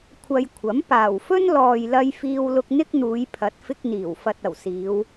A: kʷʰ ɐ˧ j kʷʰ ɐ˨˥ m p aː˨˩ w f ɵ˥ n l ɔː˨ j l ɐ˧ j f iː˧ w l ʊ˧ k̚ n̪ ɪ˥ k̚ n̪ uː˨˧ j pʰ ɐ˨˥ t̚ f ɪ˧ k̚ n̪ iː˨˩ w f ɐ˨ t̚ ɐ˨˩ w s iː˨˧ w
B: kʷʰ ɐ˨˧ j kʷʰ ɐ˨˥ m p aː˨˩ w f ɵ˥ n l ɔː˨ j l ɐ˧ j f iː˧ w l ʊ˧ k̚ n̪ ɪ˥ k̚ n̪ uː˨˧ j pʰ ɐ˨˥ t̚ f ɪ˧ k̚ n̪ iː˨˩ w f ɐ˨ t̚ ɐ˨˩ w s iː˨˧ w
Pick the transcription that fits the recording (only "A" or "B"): A